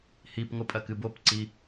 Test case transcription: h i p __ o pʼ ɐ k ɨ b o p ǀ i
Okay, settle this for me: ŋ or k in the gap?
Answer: ŋ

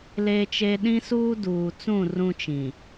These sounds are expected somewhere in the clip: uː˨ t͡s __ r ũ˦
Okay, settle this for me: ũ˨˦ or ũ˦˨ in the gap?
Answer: ũ˦˨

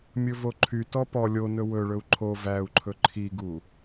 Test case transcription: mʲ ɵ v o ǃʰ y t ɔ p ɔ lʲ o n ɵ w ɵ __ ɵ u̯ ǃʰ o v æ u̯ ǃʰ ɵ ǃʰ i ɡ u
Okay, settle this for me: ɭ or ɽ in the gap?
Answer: ɭ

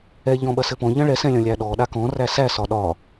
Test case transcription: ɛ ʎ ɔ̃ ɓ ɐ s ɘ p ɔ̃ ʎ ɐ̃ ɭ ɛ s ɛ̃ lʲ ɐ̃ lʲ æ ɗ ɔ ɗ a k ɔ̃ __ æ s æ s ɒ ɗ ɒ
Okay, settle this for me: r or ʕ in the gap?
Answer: r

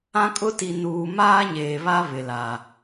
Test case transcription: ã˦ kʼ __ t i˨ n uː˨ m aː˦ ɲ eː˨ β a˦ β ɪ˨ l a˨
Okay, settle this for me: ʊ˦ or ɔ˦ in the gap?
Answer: ʊ˦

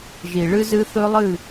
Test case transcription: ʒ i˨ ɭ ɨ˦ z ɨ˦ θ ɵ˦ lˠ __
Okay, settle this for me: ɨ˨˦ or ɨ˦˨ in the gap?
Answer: ɨ˦˨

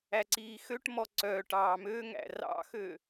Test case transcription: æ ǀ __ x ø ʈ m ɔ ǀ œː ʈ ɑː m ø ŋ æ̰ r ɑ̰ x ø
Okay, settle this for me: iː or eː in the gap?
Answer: iː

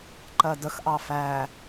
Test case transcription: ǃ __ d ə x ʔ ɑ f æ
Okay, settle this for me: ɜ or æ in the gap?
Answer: ɜ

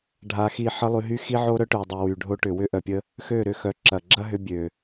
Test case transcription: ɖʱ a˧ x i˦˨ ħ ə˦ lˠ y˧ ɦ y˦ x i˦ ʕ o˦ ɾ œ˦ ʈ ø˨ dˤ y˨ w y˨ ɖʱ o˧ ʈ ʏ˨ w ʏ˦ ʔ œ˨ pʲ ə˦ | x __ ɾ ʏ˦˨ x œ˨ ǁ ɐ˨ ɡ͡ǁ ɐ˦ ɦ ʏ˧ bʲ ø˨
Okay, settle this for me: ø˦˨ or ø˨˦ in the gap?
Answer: ø˦˨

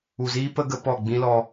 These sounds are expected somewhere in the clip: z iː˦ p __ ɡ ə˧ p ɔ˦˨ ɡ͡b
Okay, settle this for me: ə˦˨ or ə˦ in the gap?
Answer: ə˦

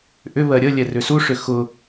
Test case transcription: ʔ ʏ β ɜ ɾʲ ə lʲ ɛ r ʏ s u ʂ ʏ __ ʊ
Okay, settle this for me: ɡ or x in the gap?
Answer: x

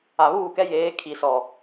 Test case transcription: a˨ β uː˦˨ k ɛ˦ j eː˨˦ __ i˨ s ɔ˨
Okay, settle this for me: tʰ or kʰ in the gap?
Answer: kʰ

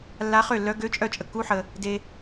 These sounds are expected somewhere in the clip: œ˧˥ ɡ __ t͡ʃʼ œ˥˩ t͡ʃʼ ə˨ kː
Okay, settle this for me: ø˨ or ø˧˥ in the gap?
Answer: ø˧˥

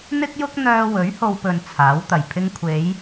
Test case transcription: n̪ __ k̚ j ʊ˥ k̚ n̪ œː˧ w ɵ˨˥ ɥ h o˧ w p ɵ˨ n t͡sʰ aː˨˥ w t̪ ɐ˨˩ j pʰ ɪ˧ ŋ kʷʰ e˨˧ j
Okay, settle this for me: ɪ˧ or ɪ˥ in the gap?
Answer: ɪ˥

